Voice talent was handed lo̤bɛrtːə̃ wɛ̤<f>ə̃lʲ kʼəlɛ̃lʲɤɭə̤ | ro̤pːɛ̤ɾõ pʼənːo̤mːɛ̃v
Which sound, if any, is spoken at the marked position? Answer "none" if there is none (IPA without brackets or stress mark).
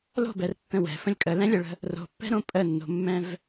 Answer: f